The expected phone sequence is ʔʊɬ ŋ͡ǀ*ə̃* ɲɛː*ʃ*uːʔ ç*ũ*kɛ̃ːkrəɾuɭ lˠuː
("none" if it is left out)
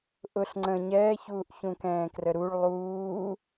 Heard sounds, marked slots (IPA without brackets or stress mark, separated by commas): ə̃, ç, ũ